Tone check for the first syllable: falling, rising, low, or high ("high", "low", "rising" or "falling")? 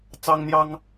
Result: high